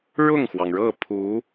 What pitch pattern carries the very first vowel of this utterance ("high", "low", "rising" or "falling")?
falling